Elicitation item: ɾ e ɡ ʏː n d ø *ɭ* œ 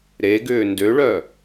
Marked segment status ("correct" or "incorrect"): correct